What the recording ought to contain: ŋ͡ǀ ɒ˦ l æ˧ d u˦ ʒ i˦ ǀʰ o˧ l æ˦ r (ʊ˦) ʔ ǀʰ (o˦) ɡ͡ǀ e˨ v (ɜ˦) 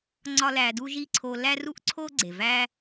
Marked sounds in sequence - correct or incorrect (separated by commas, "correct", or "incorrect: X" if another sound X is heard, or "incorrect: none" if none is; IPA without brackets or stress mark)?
incorrect: u˦, correct, incorrect: æ˦